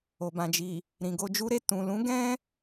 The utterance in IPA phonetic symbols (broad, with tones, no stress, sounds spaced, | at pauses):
o˨ b ã˨ d͡ʒ i˨ | ɾ ĩ˨ ɡ o˧ d͡ʒ u˦ ɾ e˦˨ t ũ˨ l ũ˨˦ ɡ ɛ̃˦